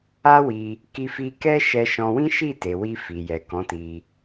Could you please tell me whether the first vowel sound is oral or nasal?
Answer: oral